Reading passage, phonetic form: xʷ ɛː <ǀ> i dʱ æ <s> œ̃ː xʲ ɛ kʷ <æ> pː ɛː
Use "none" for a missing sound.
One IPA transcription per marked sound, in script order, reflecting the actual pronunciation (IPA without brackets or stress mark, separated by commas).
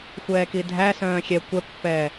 k, s, ɛ